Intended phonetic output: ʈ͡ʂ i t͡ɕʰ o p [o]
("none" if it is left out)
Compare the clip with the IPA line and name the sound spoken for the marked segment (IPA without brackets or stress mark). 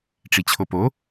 o